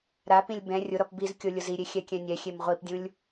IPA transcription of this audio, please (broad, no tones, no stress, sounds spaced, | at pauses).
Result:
ɾ a p ĩ lʲ b ɛ̃ rʲ ʊ ɾ ɔ p b i z kʲ o lʲ ʊ z i ɾʲ e xʲ ɛ kʲ ɛ̃ nʲ ɛ xʲ e m ʁʷ i p dʲ ũ lʲ